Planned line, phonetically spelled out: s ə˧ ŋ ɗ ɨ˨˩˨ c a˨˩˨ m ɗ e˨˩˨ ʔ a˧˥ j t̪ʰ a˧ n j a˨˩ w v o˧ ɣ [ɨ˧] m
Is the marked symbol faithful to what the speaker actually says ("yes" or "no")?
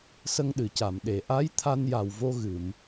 no